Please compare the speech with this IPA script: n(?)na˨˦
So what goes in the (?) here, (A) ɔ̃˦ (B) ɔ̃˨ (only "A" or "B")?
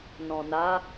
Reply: B